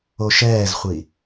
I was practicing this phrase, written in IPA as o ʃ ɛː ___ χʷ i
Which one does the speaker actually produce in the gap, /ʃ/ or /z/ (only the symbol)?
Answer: z